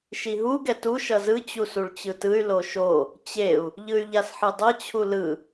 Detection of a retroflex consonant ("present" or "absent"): present